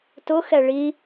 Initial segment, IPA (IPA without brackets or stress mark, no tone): t